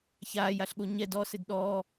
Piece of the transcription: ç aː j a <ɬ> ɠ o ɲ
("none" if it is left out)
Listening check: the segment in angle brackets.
ɬ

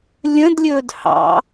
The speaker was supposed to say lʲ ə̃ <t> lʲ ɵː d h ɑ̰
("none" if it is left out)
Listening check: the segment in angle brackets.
d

